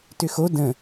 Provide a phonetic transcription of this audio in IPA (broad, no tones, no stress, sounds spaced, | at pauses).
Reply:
t ʏ x o d ə̃